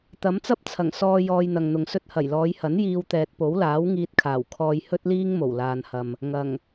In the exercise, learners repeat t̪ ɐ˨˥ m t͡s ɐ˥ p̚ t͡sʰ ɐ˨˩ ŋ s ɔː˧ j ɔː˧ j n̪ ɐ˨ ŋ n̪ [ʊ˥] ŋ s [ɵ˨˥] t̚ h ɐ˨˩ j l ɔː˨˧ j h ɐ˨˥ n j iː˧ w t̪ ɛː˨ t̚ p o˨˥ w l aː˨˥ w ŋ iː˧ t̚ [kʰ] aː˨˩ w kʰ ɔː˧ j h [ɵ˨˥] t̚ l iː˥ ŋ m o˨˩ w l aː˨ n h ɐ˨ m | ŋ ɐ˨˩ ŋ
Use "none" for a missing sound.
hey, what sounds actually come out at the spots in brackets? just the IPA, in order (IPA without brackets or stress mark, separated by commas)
ʊ˨, ɵ˧, kʰ, ɵ˥